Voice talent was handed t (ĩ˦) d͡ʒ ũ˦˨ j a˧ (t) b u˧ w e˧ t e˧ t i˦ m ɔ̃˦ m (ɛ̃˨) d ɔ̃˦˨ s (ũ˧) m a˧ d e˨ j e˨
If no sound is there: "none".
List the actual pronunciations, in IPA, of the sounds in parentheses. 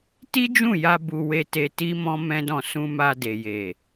i˦, none, ɛ̃˦, ũ˧

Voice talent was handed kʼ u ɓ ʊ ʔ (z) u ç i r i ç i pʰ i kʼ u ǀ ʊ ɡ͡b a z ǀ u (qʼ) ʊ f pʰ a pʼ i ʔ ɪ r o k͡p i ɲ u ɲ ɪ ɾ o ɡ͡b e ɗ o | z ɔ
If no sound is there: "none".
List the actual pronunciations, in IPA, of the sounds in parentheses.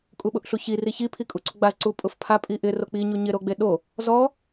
ɬ, pʼ

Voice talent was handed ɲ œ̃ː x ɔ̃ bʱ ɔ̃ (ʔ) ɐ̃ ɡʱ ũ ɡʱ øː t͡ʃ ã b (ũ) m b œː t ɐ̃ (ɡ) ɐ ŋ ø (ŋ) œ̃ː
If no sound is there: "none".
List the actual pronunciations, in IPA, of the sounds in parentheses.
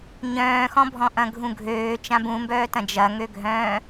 ʔ, ũ, d͡ʒ, ɡʱ

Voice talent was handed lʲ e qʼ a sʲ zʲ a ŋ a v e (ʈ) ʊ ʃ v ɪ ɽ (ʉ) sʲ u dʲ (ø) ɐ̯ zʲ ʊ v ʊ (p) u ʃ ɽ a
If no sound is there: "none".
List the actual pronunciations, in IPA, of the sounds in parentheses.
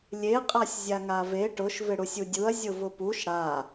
ʈ, u, u, p

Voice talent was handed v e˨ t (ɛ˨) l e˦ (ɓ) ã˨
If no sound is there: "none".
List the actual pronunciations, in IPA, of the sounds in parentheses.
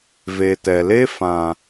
ɛ˨, f

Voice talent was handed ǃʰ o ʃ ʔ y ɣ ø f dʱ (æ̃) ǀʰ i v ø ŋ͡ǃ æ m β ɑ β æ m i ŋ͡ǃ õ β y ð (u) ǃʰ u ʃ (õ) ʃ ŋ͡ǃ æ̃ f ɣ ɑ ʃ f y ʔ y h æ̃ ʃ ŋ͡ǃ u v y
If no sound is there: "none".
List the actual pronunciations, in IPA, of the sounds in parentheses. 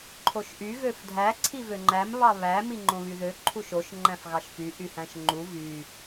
æ, ø, o

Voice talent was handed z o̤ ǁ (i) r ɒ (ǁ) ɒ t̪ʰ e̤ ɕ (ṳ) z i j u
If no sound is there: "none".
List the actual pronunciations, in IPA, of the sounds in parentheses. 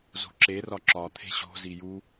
e, ǁ, o̤

